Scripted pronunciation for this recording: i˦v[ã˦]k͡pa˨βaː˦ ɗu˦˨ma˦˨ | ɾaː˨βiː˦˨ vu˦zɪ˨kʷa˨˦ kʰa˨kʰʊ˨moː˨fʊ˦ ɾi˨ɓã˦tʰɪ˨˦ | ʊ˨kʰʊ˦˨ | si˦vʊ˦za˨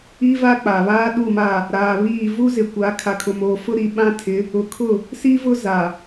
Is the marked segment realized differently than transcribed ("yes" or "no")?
yes